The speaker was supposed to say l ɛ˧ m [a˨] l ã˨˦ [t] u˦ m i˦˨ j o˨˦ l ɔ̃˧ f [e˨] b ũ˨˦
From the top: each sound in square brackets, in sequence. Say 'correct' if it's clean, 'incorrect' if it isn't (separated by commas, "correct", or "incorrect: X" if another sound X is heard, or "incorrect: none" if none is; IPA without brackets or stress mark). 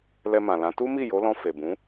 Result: incorrect: ã˨, correct, correct